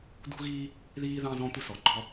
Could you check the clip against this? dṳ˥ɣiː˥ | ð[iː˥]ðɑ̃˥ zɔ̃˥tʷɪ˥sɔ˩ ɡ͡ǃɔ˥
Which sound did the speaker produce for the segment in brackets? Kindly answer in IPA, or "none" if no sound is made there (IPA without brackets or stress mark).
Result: iː˥